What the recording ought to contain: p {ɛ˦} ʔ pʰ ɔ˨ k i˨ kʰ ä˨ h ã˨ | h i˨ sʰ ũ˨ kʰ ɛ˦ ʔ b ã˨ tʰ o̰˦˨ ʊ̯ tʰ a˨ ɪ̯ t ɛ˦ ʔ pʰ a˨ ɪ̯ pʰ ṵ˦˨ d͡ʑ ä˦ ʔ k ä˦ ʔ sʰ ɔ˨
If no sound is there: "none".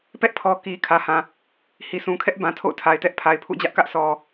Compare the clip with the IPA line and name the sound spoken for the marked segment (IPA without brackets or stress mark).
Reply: ɛ˦